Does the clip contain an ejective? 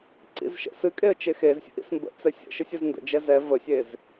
yes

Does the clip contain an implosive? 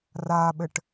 yes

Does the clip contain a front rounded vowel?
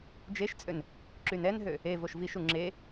yes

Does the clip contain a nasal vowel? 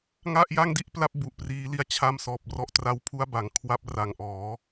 no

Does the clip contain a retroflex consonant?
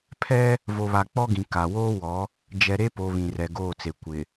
no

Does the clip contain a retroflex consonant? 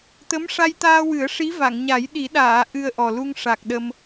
yes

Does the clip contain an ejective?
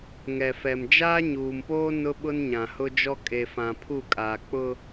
yes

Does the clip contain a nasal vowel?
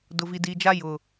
no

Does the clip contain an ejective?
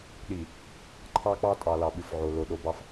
yes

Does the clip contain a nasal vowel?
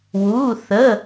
no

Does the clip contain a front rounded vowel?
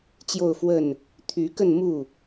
yes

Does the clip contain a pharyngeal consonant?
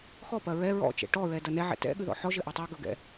yes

